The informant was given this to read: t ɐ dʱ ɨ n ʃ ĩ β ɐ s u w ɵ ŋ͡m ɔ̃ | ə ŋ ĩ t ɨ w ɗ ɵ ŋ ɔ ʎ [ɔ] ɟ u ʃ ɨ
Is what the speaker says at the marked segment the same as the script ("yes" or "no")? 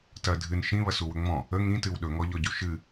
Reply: yes